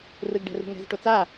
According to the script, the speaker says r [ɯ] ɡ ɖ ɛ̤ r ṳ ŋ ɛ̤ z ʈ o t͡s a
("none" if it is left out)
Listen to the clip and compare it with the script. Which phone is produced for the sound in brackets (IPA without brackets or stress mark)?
ɯ